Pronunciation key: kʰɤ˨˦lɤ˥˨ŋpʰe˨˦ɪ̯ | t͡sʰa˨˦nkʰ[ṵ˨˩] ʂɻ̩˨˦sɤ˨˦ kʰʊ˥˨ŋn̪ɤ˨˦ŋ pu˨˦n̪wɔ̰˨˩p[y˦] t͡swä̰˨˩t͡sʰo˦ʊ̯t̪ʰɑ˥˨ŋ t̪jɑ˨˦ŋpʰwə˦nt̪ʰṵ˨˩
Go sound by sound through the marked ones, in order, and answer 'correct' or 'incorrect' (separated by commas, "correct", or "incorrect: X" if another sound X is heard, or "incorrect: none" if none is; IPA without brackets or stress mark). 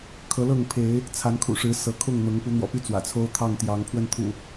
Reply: correct, correct